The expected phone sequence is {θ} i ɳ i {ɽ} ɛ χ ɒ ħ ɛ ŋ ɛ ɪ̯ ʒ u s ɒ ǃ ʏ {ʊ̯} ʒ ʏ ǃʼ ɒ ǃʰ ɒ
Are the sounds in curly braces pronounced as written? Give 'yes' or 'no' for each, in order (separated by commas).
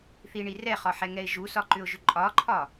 yes, no, yes